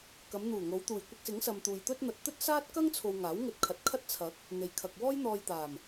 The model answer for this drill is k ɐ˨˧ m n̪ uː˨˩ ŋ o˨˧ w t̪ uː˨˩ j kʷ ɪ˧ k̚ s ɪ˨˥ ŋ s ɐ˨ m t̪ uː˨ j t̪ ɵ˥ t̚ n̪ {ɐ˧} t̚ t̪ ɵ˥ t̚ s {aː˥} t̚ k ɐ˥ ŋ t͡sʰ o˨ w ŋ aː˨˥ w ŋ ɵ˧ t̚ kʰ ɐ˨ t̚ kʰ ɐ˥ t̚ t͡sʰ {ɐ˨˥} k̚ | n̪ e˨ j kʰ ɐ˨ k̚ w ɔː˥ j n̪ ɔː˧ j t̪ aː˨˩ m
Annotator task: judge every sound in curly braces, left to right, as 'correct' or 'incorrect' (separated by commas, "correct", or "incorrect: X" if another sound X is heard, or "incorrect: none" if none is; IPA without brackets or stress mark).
correct, correct, correct